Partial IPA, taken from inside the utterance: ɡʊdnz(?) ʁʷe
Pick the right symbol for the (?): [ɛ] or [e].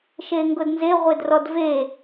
e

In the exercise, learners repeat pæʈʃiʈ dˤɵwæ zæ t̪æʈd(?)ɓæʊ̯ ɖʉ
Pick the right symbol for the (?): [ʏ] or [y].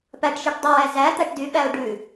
y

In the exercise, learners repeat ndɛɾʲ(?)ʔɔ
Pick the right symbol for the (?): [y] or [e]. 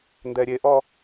e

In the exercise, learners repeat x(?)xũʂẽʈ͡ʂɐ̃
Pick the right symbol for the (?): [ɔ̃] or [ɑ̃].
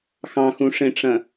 ɑ̃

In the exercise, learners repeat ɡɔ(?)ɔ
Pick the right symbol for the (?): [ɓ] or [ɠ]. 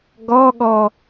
ɠ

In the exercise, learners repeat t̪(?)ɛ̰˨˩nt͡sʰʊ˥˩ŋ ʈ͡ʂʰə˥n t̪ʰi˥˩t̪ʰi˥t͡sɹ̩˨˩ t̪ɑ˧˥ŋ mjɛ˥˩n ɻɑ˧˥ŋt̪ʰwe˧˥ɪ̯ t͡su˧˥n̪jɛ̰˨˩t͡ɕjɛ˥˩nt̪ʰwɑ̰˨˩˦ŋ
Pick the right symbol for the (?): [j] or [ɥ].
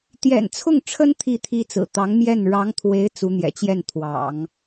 j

